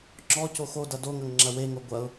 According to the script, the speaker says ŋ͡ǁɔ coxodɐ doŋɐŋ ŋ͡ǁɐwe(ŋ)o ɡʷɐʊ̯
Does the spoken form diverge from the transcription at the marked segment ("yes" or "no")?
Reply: no